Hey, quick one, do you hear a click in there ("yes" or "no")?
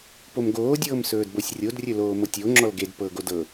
yes